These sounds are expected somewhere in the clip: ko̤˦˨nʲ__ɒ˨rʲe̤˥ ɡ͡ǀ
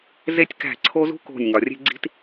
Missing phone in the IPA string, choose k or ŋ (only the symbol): ŋ